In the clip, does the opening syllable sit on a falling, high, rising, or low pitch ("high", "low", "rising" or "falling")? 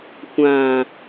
low